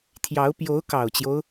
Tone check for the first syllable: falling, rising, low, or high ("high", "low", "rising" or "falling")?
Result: rising